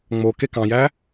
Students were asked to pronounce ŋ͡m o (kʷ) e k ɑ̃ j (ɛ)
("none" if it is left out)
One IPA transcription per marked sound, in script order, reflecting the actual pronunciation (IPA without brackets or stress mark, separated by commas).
k, æ